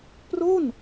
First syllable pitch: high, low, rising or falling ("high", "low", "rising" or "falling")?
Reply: falling